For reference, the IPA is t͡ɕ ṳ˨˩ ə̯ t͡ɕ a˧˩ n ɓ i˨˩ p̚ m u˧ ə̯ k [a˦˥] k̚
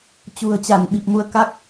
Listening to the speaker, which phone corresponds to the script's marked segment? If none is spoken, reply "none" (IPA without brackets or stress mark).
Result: a˦˥